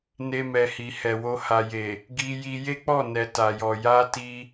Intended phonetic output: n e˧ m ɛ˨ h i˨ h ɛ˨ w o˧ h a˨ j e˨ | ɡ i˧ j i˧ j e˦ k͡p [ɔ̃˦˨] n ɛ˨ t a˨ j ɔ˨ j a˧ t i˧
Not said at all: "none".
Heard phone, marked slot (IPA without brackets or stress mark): ɔ˦˨